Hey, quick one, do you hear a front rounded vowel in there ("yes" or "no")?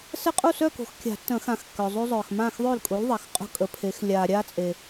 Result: yes